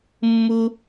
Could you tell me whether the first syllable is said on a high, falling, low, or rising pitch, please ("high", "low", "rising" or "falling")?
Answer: high